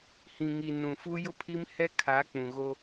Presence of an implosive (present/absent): absent